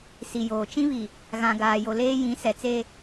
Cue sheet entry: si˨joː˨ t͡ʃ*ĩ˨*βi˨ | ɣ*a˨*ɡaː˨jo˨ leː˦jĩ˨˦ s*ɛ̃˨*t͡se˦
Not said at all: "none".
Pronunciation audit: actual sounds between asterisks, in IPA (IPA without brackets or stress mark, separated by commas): ĩ˦, ã˨, ɛ˨